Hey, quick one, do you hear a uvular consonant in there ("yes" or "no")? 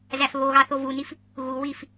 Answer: no